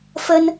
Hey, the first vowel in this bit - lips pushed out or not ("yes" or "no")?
no